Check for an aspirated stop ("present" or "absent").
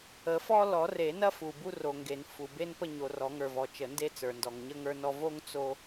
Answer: absent